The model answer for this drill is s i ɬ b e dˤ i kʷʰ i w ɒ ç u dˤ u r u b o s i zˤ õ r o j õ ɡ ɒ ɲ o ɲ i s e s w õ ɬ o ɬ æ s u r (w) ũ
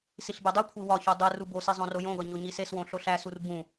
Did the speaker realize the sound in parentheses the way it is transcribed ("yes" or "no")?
no